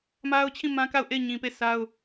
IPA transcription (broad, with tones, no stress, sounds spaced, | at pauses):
m a˦ ʊ̯ t͡ɕʰ ĩ˦˨ m ã˦ k a˦˨ ʊ̯ ʔ e˦˨ ɪ̯ ɲ ĩ˨ p e˦˨ sʰ a˦ ʊ̯